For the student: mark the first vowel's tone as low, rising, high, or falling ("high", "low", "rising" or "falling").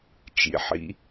low